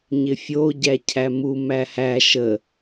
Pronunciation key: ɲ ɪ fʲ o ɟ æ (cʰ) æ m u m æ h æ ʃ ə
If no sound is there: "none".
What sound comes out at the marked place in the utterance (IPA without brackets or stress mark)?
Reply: cʰ